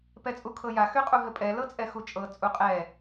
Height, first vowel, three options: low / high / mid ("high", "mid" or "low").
mid